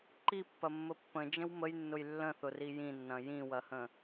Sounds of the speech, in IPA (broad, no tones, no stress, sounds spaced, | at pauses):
ǃ i pː ɐ mː ə pː ə̃ d͡ʒ ə̃ w m ə j nː ʊ j lː ə̃ θ ʊ r i j ĩ nː ɐ̃ j ĩ w ɐ h ə̃